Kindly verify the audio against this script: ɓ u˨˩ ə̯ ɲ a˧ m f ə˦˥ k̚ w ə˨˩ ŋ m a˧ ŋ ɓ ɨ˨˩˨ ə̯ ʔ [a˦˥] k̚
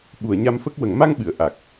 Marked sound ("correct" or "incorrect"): incorrect